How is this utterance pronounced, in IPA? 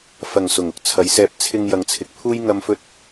fɐ˨˩ŋ sʊ˨˩ŋʊ˧k̚t͡sʰɐ˨˥jsɛː˧p̚ t͡sʰɪ˧ŋ jɐ˨ŋt͡sʰɪ˨k̚pʰuː˥j ŋɐ˥mfɵ˥t̚

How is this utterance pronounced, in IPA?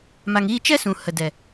ma˨ŋiː˧t͡ʃɛ˦ sũ˨hə˨dɛ˨

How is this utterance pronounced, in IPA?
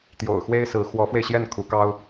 t̪jo̰˨˩ʊ̯xwe˥ɪ̯sɹ̩˧˥ xwɔ˧˥fwe˧ɪ̯ɕjɛ˥˩n kʰu˧˥kɑ˥ʊ̯

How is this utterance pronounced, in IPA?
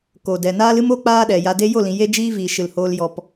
ko˨dɛ˨naː˦l ɨ˦mo˦ k͡paː˦ɗɛ˨ja˧de˦ jo˦˨lĩ˨ je˦d͡ʒiː˦viː˨ ʃɨ˨lhoː˧l jɔ˧p

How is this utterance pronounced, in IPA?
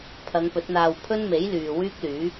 pʰɐ˨˧ŋpɵ˨˥t̚n̪aː˧w pʰɵ˥nme˨˥j lyː˨ wyː˥k̚lyː˨˥

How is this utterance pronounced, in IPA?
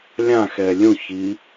lʲãxɛ lʲũçi

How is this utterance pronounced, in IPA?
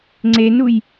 ŋ͡ǀenuj

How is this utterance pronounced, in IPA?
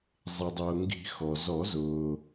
zˤɪ˩dˤʊː˩ŋɡi̤˨˩˦ xɔ˩zɔ˨˩˦z ʊː˩

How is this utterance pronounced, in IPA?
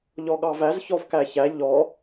ʎɔɠɑvæz çɔvkæçæ ʎɔ

